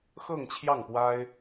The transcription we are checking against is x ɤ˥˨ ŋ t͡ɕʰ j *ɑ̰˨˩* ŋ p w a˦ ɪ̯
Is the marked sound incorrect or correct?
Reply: incorrect